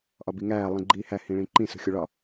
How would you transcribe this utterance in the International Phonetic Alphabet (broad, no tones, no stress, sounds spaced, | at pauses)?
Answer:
ʔ ɒ b i ŋ æː lˠ ĩ ɡ͡ǃ iː h æ h ĩː ɭ ĩː ǃ ĩ s o̤ xʲ o ɭ ɒ